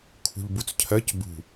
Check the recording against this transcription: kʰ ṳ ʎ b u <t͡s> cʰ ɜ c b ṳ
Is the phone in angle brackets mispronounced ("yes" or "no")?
no